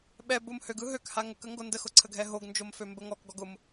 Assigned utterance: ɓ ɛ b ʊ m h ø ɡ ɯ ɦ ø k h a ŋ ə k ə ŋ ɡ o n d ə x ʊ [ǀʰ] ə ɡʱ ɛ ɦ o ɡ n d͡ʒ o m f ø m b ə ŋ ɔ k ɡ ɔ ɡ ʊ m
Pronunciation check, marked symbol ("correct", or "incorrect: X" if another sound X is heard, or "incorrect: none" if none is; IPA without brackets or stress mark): correct